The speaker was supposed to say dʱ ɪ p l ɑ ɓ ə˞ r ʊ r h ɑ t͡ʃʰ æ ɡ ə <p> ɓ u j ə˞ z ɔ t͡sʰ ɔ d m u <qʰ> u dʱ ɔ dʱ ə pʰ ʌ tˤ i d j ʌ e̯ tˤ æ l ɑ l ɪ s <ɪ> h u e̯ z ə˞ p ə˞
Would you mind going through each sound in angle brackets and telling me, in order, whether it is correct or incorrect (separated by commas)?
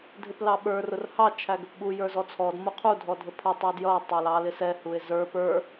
correct, correct, incorrect